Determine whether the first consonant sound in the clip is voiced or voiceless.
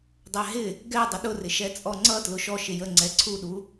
voiced